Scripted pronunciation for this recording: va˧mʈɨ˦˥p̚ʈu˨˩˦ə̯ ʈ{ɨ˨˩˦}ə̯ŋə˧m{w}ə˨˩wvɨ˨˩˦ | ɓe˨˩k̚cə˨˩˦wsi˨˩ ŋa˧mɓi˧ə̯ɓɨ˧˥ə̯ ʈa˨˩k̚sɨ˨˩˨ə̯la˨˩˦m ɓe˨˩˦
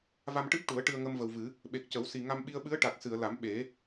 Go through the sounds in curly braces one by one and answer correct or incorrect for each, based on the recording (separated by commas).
incorrect, incorrect